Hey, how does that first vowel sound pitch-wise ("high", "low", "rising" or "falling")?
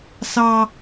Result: high